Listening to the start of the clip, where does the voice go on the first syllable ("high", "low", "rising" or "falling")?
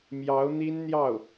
rising